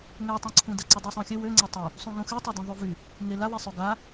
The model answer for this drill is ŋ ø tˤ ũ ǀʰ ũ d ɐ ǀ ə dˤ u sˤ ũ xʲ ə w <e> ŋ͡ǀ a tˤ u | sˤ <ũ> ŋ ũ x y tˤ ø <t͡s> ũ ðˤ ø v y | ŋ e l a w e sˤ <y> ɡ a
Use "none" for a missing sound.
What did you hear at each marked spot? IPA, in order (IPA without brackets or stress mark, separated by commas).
ø, ũ, d, ø